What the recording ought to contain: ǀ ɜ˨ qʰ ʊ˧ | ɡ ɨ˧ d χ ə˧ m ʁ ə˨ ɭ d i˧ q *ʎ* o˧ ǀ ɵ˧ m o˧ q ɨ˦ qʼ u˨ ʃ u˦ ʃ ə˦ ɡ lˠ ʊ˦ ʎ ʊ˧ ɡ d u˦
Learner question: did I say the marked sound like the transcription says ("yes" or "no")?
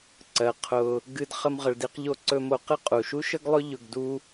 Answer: yes